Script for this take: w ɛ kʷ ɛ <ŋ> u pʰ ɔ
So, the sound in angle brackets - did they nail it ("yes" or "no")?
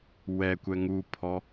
yes